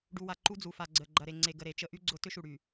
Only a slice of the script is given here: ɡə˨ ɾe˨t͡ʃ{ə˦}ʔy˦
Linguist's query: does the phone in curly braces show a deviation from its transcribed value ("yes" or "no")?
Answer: no